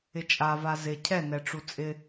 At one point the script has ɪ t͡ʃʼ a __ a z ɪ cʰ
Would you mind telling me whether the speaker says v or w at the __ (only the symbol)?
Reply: v